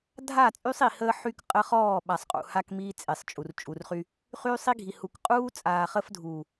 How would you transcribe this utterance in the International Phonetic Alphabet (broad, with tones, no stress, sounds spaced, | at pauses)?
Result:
dʱ a˦˨ t͡sʼ y˦ sˤ i˨ h əː˦ ħ y˦ k qʼ ə˦ χ ɔː˦˨ ɓ a˨ sˤ qʼ ṵ˨ h a˦ k m iː˦ t͡sʼ e˨ sˤ t͡ʃʼ u˨ r t͡ʃʼ u˨ r χ y˦ | χ yː˦ sˤ i˦ ɡʱ i˨ h u˨ k qʼ uː˦ t͡sʼ aː˨ χ ə˦ f dʱ uː˨